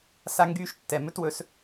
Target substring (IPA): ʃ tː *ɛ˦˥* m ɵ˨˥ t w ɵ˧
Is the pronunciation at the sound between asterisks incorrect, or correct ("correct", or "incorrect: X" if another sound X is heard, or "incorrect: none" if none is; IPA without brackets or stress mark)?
incorrect: ɛ˩˧˩